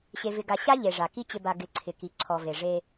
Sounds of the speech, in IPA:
ɕe˨vɪ˨ɡa˨ ɕa˦ ʎe˨ʐa˨ki˦ t͡ɕɪ˨ba˨ ɡɪ˨˦ǀʰɪ˨ki˨ ǀʰɔ˨ve˨ ʐe˦

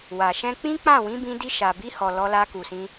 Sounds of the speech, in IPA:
wa˨ ʃɛ̃˧k͡pĩ˦k͡pã˦˨ wĩ˨˦bĩ˧di˧ ʃa˨bi˧hɔ˨ lɔ˧ la˧ku˨sĩ˧

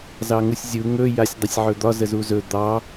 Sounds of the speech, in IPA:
zɑŋusʲzʲu ŋɵ jasʲdˤɪsʲʕɵd̪ɒ zəzuzɵ d̪ɑ

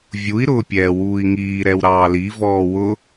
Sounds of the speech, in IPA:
vʲui̯ ɾʊːpʲɛːwuːi̯ŋiː ɾɛwɾɑːli vɔːwʊ

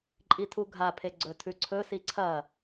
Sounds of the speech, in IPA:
ǃʼitʰuɡʱapʰe ɡ͡ǀɵtʰʉǀʰɵsi ǀʰɐ

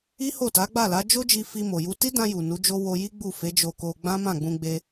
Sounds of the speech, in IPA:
i˦ ho˦˨ta˨˦ɡ͡ba˦˨la˨˦ d͡ʒo˦d͡ʒi˧fi˧ mo˨ju˧ ti˦dã˧ ju˨nu˨˦d͡ʒo˦ wo˧ji˦ ɡ͡bu˦˨ fe˨˦d͡ʒo˧ko˧ ɡ͡bã˦mã˦˨ɡ͡bũ˧ɡ͡be˧

